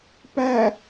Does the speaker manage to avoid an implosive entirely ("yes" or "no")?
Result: yes